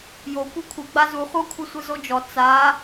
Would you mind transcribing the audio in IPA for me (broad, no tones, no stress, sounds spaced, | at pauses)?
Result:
j o kʷ ɛ kʷʰ ɨ ɡ͡b a z u χʷ ɐ kʷʰ ɐ sʷ ɨ z o d͡ʒ ɔ t͡s a